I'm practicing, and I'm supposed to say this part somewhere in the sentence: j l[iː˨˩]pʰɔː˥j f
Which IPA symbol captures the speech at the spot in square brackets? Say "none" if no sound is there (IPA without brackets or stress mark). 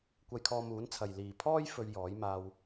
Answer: iː˨